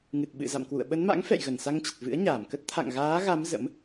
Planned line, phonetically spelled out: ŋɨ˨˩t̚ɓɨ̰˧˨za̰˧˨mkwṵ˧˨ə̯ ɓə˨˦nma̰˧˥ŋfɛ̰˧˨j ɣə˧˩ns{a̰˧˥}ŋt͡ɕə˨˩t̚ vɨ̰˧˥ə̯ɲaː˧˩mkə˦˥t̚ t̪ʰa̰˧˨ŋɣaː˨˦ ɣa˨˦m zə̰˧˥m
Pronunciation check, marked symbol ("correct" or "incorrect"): incorrect